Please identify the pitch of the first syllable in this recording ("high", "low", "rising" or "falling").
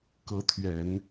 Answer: rising